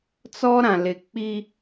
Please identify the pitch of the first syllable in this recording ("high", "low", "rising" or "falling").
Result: high